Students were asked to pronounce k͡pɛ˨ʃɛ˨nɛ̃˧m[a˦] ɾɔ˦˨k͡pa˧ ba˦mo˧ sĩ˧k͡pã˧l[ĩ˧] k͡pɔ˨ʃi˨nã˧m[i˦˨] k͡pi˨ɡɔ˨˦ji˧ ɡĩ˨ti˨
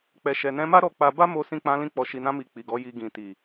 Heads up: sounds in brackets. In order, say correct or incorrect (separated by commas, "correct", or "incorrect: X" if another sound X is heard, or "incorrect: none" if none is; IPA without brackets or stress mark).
correct, correct, incorrect: i˨